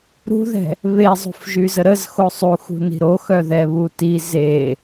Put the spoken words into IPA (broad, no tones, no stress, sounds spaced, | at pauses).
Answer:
ɾ ṳ ð ɛ̤ | β e zˤ ṳ f ʒ y z ə ɾ ə z x o sˤ u x ṳ n i̤ ɾ o x œ ð ɛ β u t i z e